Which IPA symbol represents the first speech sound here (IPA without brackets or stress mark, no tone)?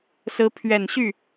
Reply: s